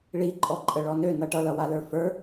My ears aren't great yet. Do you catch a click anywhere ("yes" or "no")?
yes